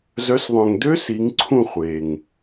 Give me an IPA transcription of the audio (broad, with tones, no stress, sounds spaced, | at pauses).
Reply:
z œ˨˦ s ðˤ œ̃˨ ŋ d ø˦˥ s i˨˦ ŋ ǀʰ ũ˦˨ χʷ e˨ ŋ